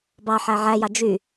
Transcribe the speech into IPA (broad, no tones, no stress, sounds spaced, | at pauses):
b ɑ ħ æ ʕ æ j ɑ d͡ʒ y